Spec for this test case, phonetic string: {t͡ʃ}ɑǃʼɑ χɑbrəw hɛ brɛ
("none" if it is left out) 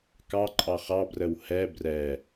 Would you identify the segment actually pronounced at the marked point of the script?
k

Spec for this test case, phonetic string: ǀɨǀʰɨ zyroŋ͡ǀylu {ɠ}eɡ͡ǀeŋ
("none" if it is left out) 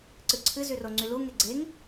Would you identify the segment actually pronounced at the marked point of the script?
ŋ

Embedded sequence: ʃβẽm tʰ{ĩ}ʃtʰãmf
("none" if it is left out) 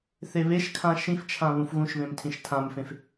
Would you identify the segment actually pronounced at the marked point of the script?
ĩ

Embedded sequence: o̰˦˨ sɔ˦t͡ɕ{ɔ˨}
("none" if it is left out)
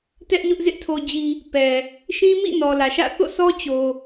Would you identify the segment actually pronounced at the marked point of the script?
o˨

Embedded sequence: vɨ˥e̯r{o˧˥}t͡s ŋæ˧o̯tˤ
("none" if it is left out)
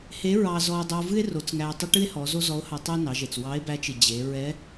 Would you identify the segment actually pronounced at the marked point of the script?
o˩˧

